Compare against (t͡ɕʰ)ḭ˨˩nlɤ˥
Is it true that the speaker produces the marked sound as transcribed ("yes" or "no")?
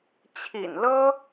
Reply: yes